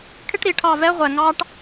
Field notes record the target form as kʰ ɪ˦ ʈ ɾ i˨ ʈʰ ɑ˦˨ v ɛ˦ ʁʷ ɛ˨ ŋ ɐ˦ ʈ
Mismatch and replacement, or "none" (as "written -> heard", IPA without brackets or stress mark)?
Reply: ɐ˦ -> ɑ˦